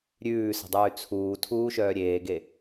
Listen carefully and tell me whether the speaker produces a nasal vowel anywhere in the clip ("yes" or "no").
no